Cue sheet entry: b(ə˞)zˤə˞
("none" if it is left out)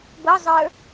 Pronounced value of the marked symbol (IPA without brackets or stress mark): ɤ